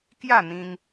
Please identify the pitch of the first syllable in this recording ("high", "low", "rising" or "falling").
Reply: falling